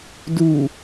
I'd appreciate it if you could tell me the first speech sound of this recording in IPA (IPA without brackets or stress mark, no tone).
d